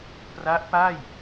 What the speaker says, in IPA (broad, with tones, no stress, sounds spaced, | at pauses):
p r a˦˥ ʔ p a˥˩ j